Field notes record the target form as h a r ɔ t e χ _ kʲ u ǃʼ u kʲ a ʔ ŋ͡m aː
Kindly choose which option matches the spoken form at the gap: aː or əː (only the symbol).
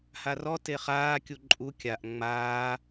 aː